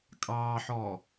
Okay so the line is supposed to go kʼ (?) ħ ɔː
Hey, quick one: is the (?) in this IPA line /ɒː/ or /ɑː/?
ɑː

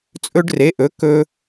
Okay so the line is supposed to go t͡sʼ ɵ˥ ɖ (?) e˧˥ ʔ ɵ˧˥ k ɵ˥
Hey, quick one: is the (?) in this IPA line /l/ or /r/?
r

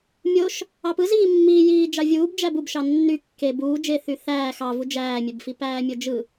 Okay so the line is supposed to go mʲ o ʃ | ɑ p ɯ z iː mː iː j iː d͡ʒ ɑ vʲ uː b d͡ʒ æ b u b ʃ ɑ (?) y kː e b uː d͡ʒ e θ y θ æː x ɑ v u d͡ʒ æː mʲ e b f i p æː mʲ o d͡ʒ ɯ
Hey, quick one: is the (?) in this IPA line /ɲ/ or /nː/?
nː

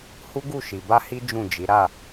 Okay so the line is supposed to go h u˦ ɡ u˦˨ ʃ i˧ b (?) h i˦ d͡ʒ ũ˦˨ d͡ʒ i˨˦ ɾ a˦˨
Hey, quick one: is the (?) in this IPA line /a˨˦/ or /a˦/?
a˦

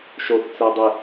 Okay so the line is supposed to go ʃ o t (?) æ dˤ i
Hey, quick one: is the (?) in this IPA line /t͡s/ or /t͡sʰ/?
t͡s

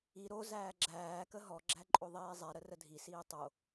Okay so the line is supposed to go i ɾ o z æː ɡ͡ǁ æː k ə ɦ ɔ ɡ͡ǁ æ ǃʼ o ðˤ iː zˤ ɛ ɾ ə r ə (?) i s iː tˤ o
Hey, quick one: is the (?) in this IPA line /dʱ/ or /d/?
dʱ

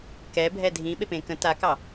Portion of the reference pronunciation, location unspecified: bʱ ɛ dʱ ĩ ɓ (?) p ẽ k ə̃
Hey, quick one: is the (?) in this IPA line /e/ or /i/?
e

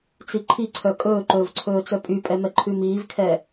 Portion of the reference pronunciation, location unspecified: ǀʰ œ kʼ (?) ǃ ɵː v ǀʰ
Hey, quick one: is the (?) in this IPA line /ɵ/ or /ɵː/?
ɵː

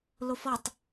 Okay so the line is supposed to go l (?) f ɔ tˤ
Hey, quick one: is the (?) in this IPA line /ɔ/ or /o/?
o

